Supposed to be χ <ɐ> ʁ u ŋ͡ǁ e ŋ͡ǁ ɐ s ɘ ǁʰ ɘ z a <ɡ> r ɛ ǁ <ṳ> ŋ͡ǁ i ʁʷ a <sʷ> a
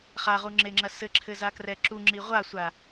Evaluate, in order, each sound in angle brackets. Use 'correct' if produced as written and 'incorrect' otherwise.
incorrect: a, incorrect: k, incorrect: u, correct

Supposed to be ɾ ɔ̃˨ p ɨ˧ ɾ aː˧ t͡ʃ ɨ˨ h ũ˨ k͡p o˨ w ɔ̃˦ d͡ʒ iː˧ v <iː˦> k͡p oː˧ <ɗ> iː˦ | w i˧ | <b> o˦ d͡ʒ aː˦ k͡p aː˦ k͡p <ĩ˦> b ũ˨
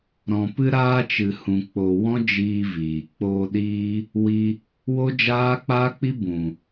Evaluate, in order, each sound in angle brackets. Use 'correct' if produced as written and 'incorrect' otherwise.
incorrect: iː˨, correct, incorrect: w, incorrect: i˦

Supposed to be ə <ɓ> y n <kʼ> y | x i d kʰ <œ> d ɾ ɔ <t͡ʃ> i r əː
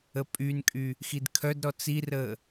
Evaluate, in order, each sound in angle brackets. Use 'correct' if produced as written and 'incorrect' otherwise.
incorrect: pʼ, correct, correct, incorrect: t͡s

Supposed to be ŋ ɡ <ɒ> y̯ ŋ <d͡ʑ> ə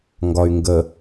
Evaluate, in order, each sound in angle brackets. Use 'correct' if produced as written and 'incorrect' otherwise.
correct, incorrect: ɡ

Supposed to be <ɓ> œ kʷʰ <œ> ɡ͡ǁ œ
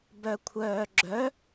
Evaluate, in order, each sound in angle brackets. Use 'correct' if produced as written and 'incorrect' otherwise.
incorrect: b, incorrect: œː

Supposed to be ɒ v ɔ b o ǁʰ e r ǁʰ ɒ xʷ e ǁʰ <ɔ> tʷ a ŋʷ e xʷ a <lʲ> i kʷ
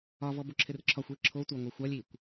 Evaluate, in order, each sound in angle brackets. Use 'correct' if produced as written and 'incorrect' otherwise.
incorrect: o, correct

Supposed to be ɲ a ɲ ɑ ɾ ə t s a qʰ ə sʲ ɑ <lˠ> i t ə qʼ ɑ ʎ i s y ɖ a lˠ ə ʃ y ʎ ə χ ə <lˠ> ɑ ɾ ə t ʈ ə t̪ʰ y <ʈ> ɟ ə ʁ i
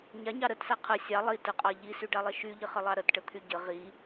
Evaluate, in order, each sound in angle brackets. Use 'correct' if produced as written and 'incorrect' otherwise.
correct, correct, incorrect: none

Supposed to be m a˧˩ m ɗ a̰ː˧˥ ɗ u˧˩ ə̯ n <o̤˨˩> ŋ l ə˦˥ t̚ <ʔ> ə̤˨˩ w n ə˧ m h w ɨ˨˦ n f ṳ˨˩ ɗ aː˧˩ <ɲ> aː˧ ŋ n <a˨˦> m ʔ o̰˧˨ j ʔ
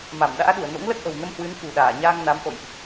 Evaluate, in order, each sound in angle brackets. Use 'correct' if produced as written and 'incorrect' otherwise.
incorrect: o̰˧˥, correct, correct, correct

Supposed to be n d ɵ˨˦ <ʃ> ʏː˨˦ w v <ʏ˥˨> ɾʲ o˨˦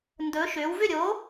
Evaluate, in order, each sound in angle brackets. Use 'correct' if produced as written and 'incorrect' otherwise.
correct, correct

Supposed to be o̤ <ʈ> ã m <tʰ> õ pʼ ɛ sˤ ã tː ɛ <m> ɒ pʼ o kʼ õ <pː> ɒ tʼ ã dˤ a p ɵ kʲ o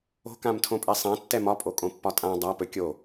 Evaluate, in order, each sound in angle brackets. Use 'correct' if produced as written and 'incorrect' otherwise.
incorrect: k, correct, correct, correct

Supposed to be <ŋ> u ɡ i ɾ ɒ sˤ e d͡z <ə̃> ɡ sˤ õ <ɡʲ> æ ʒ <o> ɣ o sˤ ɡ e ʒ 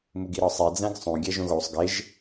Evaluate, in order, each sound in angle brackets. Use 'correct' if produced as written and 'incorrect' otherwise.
incorrect: m, incorrect: æ̃, correct, incorrect: õ

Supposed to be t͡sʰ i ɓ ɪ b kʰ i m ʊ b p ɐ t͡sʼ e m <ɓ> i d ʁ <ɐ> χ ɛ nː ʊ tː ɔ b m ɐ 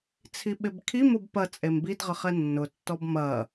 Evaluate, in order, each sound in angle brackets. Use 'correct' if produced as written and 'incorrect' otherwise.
incorrect: b, incorrect: ə

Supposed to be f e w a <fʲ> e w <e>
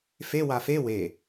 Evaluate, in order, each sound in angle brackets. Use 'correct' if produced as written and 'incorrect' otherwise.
incorrect: f, correct

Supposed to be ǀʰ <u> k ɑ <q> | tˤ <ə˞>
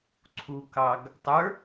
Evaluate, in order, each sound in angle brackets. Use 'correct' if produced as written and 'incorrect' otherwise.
correct, incorrect: ɡ, correct

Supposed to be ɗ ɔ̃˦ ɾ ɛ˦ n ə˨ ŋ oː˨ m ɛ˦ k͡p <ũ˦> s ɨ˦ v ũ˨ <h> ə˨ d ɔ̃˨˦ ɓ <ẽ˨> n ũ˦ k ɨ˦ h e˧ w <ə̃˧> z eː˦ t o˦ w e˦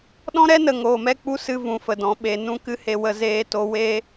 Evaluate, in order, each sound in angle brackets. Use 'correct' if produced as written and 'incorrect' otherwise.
incorrect: u˦, incorrect: f, incorrect: e˨, incorrect: ə˧

